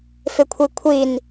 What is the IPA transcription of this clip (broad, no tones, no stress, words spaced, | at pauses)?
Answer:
fɪkʷʰikʷʰin